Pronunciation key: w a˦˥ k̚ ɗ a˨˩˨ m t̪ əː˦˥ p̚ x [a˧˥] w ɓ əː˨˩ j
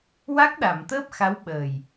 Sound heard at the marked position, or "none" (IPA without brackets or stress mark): a˧˥